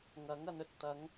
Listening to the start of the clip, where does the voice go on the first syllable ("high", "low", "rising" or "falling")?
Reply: rising